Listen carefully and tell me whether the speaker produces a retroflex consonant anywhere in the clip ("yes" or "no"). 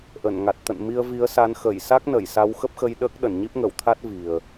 no